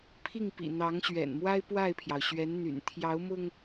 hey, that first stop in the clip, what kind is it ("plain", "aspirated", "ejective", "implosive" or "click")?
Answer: aspirated